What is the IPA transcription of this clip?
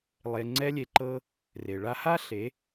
lˠe˧ ŋ͡ǀɛ˧lʲe˨ǃɤ˧ | re˨ ɭa˧ha˦ ɬe˨˦

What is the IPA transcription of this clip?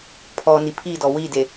pʰɔ nipʰidɔ wide

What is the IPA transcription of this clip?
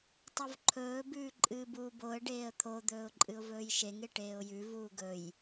tˤuvǃʰɵː bʉːǃʼɨːbuːboə̯ ɖeːə̯t̪ʰo d̪ɵːʊ̯ǃʼɨʊ̯vɵːjʃeŋ eʈeːʊ̯jʉ vuːɡɵj

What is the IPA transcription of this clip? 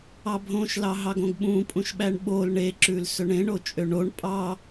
ɑbʱõʃlɑɦɑɡ õɡɓũpʼũʃɓæɳ ɓol ɳeǁʉl sɵɳẽɳot͡ʃʼø ɳoɳ pʼɑ

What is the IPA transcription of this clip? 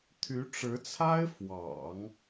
t̪ʰy˧˥ʈ͡ʂɻ̩˧˥t͡sʰa˥ɪ̯fwɑ̰˨˩˦ŋ

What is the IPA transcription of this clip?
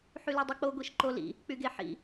ħylɯdˤɯk͡po ɡʷiʃǃolḭ | k͡pyɡeħḭ

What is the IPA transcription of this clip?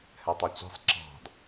hɛtˤɛt͡ɕi̤sˤ ǁɑ̤d

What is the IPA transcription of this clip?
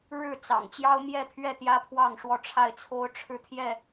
ɻɻ̩˥˨t͡sɑ̰˨˩ŋ t͡ɕjɑ˦ʊ̯mjɛ˥˨pʰɥɛ˥˨ t̪jä˦pʰwɑ˥˨ŋʂwɔ˥˨ ʈ͡ʂʰa˥˨ɪ̯t͡sʰo˦ʊ̯ʈ͡ʂʰɻ̩˥˨t̪ʰjɛ˥˨

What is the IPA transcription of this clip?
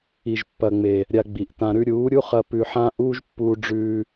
i˨ʒpːɐ˨ŋ͡me˨ | ɾʲa˧ɡ͡bi˨ʔtã˧ɾʉ˦ ɾʲuː˨˦ɾʲu˦χɐ˧ pʉ˧ħã˦ ʔuː˦ʒpːuː˧ɖ͡ʐʉː˧

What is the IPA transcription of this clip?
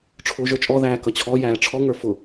ʈ͡ʂʰʊːʒə˞t͡ʃʼɔ ðæːkʌt͡ɕʰɔ jæːʈ͡ʂʰɔ ŋə˞fʊ

